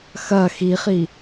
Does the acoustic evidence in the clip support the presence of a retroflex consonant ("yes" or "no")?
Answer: no